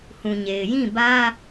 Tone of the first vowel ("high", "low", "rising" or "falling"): low